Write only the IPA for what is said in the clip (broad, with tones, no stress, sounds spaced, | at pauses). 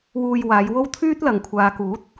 w uː˧ j w aː˨˧ j w o˥ w t̪ʰ yː˥ t̚ l ɐ˨ ŋ kʷʰ aː˨ k uː˨˥ t̚